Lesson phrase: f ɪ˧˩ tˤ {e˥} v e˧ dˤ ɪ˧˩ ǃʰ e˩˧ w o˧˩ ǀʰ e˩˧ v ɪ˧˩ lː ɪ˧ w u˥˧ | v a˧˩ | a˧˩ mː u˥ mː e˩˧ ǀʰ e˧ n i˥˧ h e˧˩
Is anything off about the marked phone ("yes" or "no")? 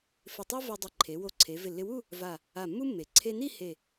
no